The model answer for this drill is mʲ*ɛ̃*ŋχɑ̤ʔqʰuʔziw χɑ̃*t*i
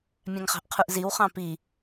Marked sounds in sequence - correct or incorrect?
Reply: incorrect, incorrect

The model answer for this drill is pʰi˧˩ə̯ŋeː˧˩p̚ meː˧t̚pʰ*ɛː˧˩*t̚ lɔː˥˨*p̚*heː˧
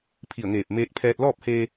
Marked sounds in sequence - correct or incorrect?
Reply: incorrect, correct

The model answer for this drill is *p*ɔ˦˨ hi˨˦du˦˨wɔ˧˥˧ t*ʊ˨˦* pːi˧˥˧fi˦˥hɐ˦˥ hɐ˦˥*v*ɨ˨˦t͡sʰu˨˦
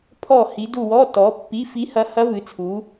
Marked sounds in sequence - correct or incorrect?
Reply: incorrect, incorrect, correct

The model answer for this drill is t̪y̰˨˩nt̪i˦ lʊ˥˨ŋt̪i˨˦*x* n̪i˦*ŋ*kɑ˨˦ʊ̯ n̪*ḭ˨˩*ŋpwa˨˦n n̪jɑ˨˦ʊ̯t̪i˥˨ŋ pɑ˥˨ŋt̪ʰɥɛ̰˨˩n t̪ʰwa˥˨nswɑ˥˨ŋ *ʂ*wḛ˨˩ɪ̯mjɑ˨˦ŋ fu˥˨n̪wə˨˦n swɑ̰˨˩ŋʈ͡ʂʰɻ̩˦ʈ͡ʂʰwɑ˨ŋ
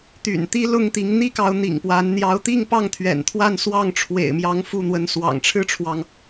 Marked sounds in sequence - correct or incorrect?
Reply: incorrect, incorrect, correct, incorrect

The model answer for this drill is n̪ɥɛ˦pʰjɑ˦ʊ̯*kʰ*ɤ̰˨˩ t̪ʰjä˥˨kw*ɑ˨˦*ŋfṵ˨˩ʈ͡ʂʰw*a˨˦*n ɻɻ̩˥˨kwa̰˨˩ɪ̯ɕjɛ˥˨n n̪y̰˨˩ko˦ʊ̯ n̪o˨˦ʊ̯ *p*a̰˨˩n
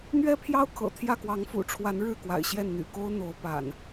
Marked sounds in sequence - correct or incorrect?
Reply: correct, correct, correct, correct

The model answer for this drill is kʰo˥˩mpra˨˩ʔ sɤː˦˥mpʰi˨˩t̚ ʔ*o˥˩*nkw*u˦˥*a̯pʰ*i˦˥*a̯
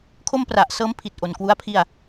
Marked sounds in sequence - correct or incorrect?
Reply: incorrect, correct, incorrect

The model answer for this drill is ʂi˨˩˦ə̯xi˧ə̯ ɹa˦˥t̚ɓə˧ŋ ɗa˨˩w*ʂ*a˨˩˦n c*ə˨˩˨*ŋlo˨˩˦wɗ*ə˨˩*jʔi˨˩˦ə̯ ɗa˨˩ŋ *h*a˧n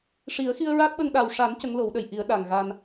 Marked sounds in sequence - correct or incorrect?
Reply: correct, incorrect, correct, incorrect

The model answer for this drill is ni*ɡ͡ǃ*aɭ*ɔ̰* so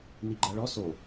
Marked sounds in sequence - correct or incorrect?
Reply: correct, incorrect

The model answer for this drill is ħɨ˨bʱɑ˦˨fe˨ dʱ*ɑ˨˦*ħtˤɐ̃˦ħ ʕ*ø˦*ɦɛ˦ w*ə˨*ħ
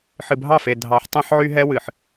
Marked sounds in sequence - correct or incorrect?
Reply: correct, incorrect, incorrect

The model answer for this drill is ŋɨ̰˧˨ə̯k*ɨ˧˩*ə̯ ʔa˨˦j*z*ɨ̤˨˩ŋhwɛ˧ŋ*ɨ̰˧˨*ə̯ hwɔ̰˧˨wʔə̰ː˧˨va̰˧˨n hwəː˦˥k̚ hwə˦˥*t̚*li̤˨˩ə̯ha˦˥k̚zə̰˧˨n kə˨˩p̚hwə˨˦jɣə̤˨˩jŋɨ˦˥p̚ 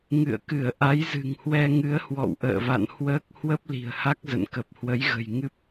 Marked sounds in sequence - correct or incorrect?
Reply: correct, correct, incorrect, incorrect

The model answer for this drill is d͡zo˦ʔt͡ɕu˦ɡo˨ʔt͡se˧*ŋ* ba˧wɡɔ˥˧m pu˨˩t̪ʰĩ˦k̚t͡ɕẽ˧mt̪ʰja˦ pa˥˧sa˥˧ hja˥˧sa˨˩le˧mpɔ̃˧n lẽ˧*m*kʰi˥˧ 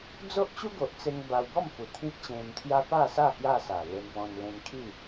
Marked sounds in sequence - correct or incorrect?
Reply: correct, incorrect

